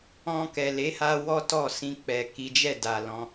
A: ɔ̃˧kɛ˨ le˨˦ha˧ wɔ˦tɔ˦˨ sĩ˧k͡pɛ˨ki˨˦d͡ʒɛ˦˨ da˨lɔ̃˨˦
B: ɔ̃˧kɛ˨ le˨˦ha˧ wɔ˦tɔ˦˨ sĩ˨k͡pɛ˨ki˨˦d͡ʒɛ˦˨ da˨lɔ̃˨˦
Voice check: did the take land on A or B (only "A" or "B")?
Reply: A